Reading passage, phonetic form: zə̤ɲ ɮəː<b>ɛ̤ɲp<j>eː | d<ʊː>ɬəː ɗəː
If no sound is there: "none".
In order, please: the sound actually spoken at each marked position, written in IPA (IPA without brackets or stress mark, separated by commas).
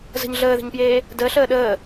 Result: ð, j, əː